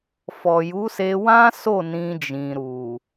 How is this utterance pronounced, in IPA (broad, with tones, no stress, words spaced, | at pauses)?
fɔ˨ju˨˦se˧ wã˦so˦˨ nĩ˧d͡ʒĩ˨ ɾu˨